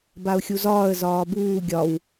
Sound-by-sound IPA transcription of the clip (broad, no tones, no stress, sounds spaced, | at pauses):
b a ʊ̯ xʲ u z ɒː ə̯ z ɒː b uː ɡʲ ɒ w